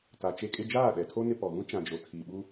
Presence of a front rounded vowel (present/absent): absent